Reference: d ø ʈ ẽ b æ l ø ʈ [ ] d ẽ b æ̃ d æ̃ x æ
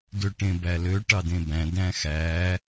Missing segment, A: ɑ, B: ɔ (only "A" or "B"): A